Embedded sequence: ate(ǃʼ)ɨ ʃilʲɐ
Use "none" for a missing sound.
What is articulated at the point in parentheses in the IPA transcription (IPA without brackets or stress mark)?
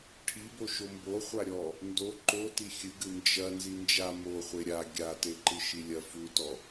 ǃ